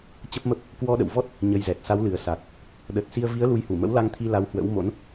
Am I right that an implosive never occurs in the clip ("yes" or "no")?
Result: no